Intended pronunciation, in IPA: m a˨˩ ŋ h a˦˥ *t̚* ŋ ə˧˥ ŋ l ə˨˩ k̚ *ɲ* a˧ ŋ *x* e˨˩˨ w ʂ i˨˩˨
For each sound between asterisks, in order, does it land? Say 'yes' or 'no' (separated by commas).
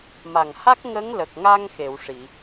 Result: no, no, yes